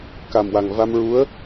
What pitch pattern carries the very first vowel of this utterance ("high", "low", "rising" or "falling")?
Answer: low